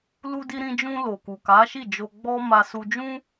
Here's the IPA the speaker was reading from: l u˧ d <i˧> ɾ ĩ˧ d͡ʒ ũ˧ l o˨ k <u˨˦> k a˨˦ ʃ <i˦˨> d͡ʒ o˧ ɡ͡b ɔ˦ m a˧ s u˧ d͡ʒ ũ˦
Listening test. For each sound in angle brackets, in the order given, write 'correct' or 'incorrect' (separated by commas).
correct, incorrect, correct